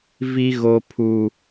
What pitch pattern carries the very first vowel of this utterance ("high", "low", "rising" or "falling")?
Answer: high